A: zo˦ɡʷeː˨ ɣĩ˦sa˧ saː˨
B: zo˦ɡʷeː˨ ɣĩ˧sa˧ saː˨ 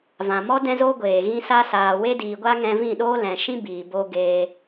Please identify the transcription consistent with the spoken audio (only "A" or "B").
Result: B